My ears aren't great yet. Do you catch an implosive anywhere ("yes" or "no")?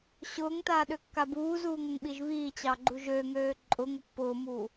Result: yes